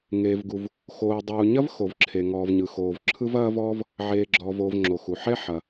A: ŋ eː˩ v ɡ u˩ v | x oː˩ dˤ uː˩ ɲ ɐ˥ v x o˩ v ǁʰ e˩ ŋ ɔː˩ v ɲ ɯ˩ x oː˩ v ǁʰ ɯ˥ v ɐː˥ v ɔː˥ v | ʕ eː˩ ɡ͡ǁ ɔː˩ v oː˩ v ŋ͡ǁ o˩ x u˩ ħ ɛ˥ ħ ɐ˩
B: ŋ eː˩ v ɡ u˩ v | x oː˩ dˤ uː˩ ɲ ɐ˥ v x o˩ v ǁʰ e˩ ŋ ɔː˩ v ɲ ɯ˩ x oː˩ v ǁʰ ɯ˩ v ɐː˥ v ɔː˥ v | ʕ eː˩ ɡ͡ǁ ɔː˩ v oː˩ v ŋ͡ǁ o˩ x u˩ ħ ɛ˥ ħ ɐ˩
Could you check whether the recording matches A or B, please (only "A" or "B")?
A